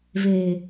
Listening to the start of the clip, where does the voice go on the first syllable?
low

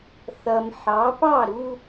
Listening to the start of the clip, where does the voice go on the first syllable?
low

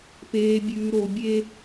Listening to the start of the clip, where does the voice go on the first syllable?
low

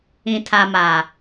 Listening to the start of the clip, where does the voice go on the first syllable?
low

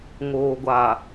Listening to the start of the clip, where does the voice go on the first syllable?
low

